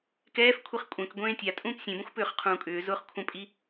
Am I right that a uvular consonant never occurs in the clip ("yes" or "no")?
no